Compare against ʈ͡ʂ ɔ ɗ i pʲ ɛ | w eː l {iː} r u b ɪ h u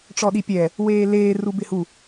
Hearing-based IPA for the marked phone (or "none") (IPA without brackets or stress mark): eː